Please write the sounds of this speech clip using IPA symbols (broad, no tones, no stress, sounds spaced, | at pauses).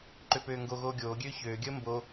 ǃ ø p øː ŋ ɡ o ɣ oː ɡʲ oː ɡʲ øː ç øː ɡʲ əː m b o